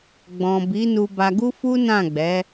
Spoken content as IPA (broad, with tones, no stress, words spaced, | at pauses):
ɡ͡bɔ̃˨ bi˨˦nu˧ba˧ɡu˦ fu˦nã˦˨ɡ͡bɛ˨˦